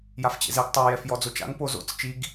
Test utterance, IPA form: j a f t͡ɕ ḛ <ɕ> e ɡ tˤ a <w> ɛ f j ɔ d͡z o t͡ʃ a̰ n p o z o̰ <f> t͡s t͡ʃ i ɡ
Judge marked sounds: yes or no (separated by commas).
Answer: no, no, no